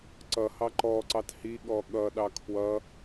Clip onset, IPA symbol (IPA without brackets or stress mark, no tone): ǀ